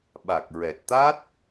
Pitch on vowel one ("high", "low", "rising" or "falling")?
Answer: low